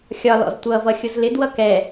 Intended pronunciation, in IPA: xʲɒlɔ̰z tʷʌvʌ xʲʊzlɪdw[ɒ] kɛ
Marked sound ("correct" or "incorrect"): incorrect